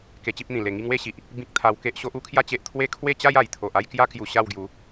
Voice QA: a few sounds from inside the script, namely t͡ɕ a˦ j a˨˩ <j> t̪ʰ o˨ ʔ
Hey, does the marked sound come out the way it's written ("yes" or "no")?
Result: yes